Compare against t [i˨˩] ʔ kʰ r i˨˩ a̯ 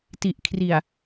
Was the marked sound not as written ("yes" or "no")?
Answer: no